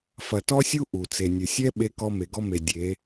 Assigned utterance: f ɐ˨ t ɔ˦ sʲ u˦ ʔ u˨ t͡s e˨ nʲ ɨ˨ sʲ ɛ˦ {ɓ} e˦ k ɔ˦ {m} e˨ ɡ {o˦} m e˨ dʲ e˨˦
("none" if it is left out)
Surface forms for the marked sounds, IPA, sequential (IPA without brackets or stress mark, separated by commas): ɓ, m, ɔ˦